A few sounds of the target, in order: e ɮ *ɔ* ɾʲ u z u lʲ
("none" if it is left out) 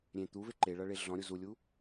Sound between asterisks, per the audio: ɔ̃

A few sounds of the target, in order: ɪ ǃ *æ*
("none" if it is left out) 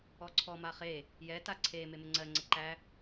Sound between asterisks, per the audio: æ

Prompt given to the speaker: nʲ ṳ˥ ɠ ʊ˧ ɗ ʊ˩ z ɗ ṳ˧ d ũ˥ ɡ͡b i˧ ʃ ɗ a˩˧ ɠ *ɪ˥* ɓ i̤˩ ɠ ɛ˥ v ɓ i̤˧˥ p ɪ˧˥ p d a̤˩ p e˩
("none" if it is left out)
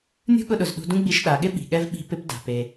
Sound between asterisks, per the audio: ɪ˥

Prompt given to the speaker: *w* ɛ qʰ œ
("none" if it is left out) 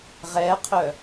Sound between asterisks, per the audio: ʁ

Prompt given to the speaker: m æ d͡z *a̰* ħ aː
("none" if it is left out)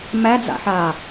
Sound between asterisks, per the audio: a̰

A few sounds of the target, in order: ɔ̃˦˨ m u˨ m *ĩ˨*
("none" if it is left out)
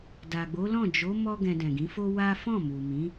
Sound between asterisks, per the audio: ĩ˨˦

